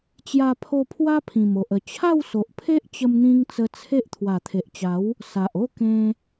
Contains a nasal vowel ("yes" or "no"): yes